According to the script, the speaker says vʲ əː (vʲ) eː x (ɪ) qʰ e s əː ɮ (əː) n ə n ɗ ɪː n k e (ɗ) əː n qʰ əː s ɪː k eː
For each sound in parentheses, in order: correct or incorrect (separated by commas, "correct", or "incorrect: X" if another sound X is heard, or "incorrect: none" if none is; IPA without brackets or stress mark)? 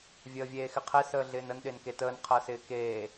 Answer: correct, correct, incorrect: ɪː, incorrect: t